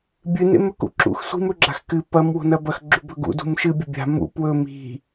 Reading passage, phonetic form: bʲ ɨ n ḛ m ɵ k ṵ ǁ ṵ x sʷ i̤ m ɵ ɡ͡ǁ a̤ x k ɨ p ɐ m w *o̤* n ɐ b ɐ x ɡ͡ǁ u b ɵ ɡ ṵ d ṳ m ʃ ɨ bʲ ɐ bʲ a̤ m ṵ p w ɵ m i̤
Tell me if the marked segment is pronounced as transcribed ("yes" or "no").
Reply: yes